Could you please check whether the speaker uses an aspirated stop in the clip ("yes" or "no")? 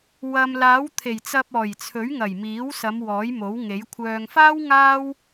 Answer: yes